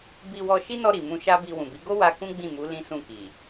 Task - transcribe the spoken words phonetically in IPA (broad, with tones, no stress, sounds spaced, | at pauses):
b i˧ w ɔ˧ ʃ i˦ n ɔ˧ ɾ i˨ m ũ˧ ʃ a˦ b i˧ w ũ˨ b i˨˦ ɡ o˦ w a˦ k ũ˦ ɡ͡b ĩ˦˨ m u˨˦ l ĩ˦ s ũ˦˨ k i˨